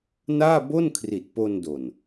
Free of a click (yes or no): yes